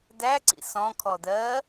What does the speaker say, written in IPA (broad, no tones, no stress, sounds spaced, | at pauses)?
d æ ǀ ḭ s ɔ̃ kʰ ɔ d ɜ